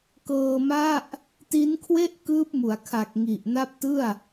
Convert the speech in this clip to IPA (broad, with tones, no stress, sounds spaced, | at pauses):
k ɤː˧ m a˥˩ ʔ | t i˦˥ n kʰ w e˥˩ ʔ k ɯː˦˥ p̚ m u˩˦ a̯ kʰ a˨˩ k̚ ŋ i˨˩ ʔ n a˦˥ p̚ t ɯ˥˩ a̯